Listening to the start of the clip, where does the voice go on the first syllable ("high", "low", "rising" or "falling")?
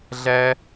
high